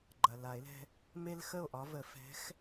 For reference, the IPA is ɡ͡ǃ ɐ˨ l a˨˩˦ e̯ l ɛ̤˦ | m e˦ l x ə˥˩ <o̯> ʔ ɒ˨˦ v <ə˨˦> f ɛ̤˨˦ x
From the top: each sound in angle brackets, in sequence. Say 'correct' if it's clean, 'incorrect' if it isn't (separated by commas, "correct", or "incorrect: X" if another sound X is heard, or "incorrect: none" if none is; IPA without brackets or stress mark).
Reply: correct, incorrect: ə˨˩˦